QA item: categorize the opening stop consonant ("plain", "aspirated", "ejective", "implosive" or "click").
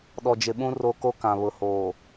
implosive